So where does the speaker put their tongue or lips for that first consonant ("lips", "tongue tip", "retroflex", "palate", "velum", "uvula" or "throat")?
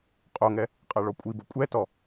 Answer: uvula